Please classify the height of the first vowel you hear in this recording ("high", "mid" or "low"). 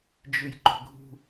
high